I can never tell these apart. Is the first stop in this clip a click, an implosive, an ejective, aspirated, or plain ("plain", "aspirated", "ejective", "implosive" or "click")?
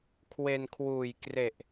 aspirated